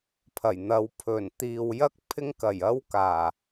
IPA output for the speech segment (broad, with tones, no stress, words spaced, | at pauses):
pʰɐ˨˩jn̪ɐ˨˧w pʰɵ˨˩nt̪iː˨w jɐ˥k̚ pʰɪ˥ŋkɐ˨˩j ɐ˧w kaː˨˩